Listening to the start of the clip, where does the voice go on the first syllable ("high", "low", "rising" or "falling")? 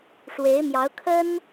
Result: rising